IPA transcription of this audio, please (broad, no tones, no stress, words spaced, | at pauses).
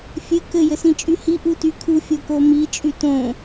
fʲɘ kɘ jɘsĩt͡ʃʼyhi ʔutykʰu fʲokomi t͡ʃʼytõ